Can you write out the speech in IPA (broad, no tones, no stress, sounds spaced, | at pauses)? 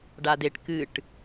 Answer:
ɖ a d e ʈ k ɨ ʈ